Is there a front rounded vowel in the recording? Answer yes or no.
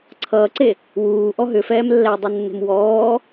yes